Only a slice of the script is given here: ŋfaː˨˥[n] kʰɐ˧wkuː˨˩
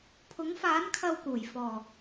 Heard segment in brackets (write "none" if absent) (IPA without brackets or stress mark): n